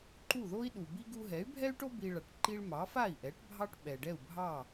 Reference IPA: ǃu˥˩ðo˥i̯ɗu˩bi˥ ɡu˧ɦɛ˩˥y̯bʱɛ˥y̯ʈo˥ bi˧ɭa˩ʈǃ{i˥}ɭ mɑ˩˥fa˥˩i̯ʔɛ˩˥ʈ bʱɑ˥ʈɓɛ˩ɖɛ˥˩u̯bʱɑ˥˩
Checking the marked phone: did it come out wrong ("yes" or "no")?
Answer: no